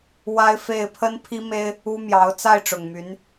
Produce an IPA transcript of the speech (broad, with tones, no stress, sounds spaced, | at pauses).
w a˥ ɪ̯ f e˥˩ ɪ̯ pʰ ə˥ n pʰ i˥ m e˥ ɪ̯ | u˥ m j ɑ˧˥ ʊ̯ t͡s a˥˩ ɪ̯ ʈ͡ʂ ʊ˨˩ ŋ m y˧˥ n